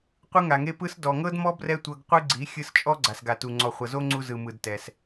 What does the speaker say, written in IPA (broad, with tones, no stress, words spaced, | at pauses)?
qʷɯ˦ŋa˨ŋe˦ pɯ˦s dɔ˨ŋɤ˦dmɔ˦ brɛ˦tʷɤ˧ɡqʷɯ˦ɡ͡ǀi˨˦ xʲɯ˧st͡ʃʼɔ˦ ɡ͡ǀa˨sɡa˨tu˨ ŋ͡ǀɔ˨χʷɤ˨zo˦ŋ͡ǀu˧ zɯ˨mɯ˨dtɛ˨s